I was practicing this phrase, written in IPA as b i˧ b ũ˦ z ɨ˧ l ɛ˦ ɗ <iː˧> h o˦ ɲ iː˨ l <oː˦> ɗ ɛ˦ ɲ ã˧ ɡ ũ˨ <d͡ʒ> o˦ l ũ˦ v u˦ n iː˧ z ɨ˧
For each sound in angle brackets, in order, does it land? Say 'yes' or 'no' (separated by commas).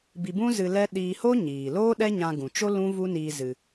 yes, yes, no